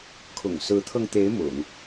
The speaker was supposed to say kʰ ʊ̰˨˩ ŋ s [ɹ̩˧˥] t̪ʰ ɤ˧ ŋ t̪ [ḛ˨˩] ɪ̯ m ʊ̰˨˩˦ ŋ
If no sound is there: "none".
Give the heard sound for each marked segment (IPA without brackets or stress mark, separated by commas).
ɹ̩˧˥, e˧˥